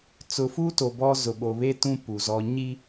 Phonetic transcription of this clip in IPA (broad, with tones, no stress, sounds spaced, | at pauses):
t͡s ʊ˨ f u˦ t o˨ b ɔ˦ z ʊ˨ ɓ o˨ β e˦ t ũ˦ p u˨ z ɔ˦ ɲ i˦